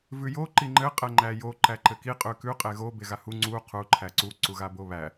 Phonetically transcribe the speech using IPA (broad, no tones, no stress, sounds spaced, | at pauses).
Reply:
v ʉ j o ǃ i ŋ͡ǃ ɘ qʼ ɛ ŋ͡ǃ æ j o ǃ æ ǃ ɘ k i qʼ ʉ k ʉ qʼ e ɣ o b e ɣ a h u ŋ͡ǀ u qʰ u ǃʰ æ ǀ u ǀ u ɣ a b o β æ